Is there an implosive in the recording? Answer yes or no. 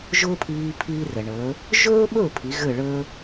yes